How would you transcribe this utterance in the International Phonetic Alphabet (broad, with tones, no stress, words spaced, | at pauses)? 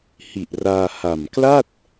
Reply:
hi˨˩ʔraː˧ha˨˩m kla˥˩t̚